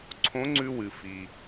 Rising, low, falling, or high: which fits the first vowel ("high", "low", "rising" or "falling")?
rising